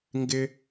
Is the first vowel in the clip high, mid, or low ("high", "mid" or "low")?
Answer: high